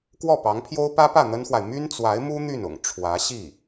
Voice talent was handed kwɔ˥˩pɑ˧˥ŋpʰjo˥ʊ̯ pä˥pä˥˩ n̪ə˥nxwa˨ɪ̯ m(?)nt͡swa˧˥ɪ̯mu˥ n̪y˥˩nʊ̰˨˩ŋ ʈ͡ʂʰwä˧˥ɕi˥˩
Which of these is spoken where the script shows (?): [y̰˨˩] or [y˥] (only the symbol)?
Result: y˥